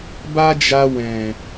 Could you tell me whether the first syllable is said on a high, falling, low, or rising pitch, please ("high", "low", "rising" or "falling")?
high